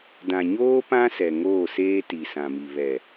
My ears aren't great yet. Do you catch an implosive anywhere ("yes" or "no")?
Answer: no